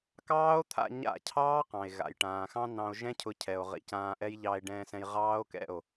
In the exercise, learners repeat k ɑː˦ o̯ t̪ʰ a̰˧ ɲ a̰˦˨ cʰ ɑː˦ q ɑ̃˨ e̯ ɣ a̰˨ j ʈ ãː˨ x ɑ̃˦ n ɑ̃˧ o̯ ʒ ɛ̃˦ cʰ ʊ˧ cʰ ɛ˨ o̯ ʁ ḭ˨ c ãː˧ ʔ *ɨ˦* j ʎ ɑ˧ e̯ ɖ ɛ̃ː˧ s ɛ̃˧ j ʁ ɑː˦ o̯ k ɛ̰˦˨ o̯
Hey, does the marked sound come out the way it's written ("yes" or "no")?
no